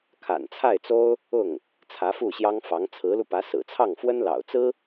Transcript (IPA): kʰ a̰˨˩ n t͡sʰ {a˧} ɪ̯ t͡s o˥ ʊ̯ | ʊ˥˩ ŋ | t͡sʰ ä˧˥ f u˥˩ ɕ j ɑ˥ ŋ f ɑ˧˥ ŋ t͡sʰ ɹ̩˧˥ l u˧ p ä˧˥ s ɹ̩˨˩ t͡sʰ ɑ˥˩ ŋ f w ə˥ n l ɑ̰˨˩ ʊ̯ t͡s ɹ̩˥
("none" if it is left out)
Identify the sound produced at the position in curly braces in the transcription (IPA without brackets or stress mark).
a˥˩